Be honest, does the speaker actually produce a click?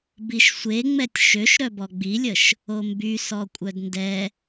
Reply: no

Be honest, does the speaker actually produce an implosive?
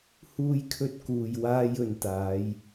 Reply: no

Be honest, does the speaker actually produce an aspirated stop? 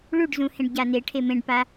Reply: yes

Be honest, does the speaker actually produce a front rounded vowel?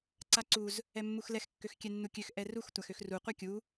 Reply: yes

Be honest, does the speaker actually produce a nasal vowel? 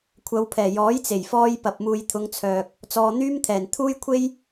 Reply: no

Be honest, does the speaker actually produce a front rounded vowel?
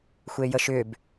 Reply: yes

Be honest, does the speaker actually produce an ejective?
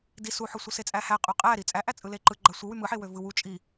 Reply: yes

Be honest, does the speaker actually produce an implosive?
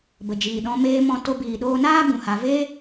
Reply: yes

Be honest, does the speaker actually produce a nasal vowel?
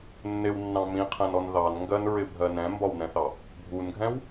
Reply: yes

